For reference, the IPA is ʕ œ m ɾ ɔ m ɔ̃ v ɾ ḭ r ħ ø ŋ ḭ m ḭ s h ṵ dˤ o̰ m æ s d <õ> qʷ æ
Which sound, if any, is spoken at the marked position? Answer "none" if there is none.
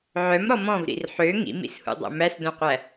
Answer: õ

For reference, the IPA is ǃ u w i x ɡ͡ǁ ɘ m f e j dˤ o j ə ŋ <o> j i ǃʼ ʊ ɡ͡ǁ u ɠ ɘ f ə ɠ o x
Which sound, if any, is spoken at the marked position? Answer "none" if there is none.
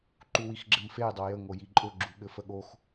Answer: o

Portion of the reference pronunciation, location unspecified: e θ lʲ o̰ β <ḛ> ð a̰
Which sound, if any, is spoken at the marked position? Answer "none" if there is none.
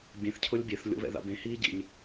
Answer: ɛ̰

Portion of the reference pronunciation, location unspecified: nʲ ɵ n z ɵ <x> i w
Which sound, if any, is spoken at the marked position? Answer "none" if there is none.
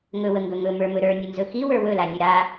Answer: x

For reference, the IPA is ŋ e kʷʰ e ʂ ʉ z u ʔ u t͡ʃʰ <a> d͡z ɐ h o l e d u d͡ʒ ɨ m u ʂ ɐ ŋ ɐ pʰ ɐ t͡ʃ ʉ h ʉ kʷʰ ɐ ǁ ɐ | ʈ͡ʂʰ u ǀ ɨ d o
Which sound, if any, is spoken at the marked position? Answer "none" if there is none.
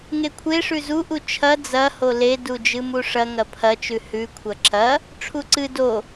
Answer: ɐ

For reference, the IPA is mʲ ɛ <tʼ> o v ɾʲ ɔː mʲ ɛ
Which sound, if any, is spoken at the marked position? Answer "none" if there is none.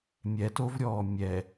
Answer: t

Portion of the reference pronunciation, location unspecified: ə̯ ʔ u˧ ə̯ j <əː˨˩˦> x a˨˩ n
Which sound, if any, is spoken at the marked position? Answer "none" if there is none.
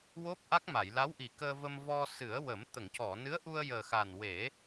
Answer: əː˨˩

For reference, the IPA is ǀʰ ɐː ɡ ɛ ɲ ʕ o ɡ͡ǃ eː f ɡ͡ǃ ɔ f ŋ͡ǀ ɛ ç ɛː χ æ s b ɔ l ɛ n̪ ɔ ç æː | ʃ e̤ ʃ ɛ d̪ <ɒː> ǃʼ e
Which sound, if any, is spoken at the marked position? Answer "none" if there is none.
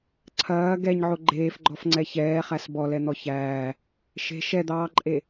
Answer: ɑː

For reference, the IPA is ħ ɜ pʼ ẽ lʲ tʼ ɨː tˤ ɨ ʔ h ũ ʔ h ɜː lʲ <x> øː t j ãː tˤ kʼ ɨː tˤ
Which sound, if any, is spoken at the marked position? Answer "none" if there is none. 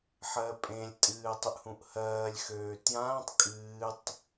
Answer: x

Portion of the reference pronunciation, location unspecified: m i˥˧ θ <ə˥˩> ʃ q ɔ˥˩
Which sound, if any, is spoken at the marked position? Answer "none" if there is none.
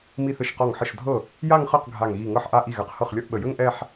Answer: ə˥˩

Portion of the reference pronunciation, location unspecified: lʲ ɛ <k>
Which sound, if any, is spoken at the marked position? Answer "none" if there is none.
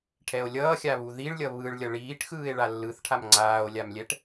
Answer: ʈ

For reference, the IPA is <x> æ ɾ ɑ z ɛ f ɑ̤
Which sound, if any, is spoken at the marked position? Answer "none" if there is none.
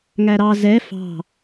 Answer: ŋ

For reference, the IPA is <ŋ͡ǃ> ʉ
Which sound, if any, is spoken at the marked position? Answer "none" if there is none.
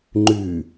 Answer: ŋ͡ǃ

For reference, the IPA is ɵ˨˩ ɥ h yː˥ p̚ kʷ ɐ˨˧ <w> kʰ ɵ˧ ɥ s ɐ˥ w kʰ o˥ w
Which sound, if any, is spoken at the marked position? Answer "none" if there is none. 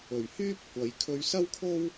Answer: j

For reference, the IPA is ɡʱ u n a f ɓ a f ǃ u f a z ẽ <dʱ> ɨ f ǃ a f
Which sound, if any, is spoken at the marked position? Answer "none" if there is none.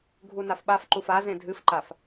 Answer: dʱ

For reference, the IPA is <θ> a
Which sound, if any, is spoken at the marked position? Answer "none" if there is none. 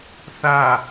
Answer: θ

